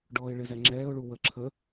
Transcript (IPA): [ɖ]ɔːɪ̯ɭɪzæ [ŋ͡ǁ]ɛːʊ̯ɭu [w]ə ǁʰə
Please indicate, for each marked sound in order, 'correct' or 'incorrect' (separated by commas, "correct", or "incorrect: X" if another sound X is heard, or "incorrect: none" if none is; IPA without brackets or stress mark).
correct, correct, correct